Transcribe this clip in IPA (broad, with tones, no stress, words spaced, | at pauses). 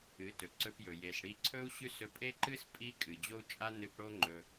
ɨ˨˦tɵ˨ǀɵ˧pjɵ˨ je˨sɽi˧ǀʰɵ˦u̯ ɕʉ˦s ɵ˧pʼe˦ǃɨ˦s pʼi˦kʼɨ˨ d͡ʑo˦u̯t͡ʃʼa˦ nɨ˧p ɽo˦ŋ͡ǃɵ˧